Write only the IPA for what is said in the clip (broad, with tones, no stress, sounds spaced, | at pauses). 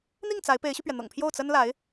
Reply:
n̪ i˥˩ ŋ t͡s a˧˥ ɪ̯ p e˧˥ ɪ̯ ɕ y˧ p ɥ ɛ˩ n̪ ɤ̰˨˩ ŋ pʰ j o˥˩ ʊ̯ t͡s ə˥ n l a˧˥ ɪ̯